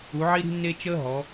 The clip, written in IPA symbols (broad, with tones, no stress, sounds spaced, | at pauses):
u˩˧ ʕ i˦ ɾ i̤˦ nː e˦ t͡ʃ əː˦ ɦ ɔ˩˧